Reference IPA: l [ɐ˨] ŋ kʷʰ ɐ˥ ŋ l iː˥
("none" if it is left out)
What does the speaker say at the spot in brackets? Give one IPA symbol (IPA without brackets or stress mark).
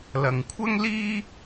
ɐ˨